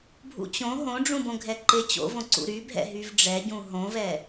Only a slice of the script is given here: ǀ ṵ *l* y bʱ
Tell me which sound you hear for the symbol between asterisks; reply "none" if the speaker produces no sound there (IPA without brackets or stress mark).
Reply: ɾ